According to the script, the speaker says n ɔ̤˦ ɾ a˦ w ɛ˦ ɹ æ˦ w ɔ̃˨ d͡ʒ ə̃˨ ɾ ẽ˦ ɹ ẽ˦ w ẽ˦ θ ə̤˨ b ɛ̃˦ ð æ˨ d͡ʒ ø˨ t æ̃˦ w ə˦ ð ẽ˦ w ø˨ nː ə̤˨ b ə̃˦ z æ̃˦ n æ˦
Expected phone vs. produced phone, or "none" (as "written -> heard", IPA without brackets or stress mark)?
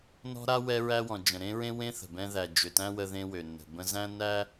none